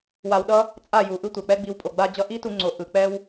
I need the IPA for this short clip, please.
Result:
w a˧ w ɗ ʌ˦ | t͡sʼ a˦˨ j u˨ ʔ ɯ˦ tʷ ɛ˨ k͡p ɛ˦ ɡ͡b i˧ w pʼ o˨ ɡ͡b a˦ d͡ʑ ʌ˦ ʔ i˦ t u˧ ŋ͡ǀ o˨ ʔ ɯ˨ k͡p ɛ˦ w

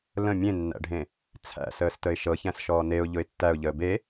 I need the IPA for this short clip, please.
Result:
l ə̃ mʲ ẽ nː æ̰ ɖʱ ẽ | t͡sʰ æ̰ s əː s t ə ɪ̯ ʃ ɤ ç æ̃ s ʃ ɔː n e ʊ̯ ʎ ʊ ɪ̯ tː æ ʊ̯ ʎ əː b e

